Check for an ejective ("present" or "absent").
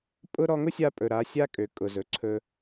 present